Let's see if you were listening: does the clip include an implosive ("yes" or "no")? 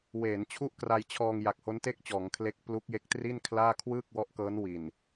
no